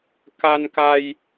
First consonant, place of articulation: velar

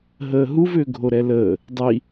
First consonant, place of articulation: glottal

